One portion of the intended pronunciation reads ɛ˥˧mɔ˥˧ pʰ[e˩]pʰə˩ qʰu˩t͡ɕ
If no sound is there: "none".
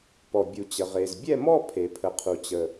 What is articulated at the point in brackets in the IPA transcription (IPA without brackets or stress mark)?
e˩